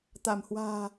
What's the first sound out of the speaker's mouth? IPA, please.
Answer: t̪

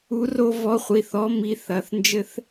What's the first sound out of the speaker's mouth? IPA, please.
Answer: u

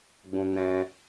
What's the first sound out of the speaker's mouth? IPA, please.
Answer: ɡ͡b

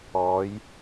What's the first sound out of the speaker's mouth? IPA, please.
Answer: ɔː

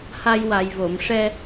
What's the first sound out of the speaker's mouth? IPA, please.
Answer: h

